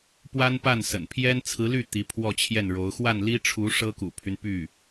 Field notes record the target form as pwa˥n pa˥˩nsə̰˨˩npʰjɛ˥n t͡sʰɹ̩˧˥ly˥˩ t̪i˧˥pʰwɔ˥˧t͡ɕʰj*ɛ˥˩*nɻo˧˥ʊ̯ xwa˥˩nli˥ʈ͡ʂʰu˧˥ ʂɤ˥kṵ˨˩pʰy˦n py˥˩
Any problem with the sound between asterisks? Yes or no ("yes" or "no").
no